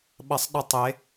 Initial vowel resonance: oral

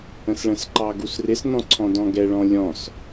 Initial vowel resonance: nasal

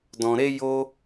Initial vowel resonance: nasal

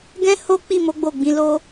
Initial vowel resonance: nasal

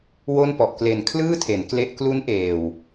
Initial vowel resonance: oral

